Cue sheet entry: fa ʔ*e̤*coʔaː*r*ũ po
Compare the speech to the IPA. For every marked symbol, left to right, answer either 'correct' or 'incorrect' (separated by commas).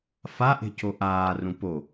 correct, correct